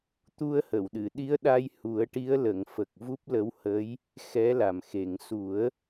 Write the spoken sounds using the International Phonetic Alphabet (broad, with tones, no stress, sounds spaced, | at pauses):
t̪ u˧ ə̯ h ə˨˩˨ w ɗ ɨ˨˩˨ ɗ i˧˥ ə̯ ɗ a˧ j h u˨˩˦ ə̯ ʈ i˧˥ ə̯ l ə˨˩˨ ŋ f ə˨˩ k̚ v u˦˥ p̚ l ə˧˥ w h ə˧˥ j | x ɛ˧˥ l a˨˩ m x e˨˩˨ ŋ s u˨˩˦ ə̯